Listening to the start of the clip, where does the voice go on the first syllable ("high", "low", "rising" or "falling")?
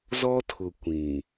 high